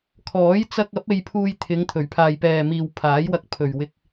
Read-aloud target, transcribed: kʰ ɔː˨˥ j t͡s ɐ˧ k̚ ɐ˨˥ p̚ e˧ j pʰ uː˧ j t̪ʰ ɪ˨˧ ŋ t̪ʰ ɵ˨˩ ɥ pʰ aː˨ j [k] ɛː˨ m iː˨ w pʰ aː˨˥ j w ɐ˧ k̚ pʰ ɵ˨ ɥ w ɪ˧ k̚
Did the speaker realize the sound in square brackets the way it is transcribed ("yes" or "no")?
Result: no